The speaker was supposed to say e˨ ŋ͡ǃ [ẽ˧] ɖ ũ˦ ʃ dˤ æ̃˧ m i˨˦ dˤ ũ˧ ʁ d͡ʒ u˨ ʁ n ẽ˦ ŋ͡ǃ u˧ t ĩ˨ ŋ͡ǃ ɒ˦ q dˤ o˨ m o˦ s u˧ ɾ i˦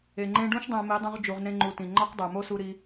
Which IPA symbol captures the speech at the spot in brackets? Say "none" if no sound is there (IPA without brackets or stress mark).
ẽ˧